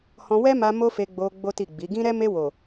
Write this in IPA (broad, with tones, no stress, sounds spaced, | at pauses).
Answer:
h ɔ̃˧ w ɛ˦ m a˧ m o˦ f e˧ ɡ͡b o˧ ɡ͡b o˦ t i˦˨ ɡ͡b i˨˦ ɡ ĩ˦ ɾ ɛ˦ m e˧ w o˨